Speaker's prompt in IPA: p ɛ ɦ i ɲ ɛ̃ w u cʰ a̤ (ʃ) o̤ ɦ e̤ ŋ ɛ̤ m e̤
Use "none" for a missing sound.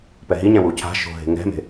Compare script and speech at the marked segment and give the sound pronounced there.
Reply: ʃ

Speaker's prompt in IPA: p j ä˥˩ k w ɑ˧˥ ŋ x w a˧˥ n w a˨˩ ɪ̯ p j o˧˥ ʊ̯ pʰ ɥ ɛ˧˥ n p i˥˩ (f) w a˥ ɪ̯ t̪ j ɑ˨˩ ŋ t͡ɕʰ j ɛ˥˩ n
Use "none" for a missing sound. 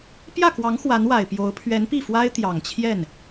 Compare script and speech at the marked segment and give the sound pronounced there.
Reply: f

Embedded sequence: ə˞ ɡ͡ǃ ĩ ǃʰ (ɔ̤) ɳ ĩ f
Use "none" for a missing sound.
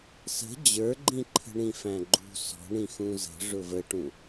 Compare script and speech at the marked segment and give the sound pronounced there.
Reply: ə̤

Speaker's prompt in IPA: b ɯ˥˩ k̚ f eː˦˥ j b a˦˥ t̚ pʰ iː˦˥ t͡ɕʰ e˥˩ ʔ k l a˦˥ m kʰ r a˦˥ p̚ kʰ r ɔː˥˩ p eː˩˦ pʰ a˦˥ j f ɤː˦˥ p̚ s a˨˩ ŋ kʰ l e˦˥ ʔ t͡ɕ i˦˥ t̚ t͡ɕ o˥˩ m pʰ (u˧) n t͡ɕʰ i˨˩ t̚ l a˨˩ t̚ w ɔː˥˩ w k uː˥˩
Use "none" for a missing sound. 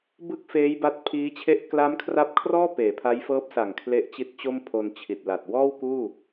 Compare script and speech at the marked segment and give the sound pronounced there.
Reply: o˧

